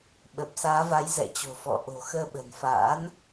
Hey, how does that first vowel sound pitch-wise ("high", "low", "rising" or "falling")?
low